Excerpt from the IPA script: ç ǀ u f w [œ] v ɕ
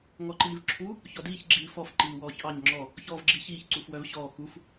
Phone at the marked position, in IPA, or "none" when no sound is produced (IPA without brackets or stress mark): œ